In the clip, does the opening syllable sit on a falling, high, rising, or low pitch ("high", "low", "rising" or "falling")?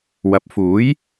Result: rising